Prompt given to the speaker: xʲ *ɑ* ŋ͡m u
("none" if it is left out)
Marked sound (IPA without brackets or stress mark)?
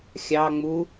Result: ɑ